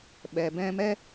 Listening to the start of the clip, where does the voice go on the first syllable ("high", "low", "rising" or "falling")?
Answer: low